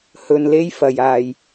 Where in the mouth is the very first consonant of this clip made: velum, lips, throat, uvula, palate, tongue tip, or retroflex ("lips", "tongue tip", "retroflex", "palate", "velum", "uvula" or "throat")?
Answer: throat